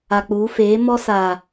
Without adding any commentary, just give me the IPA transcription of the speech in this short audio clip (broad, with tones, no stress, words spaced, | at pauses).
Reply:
a˨k͡puː˨˦ feː˨˦ mɔ˦ saː˨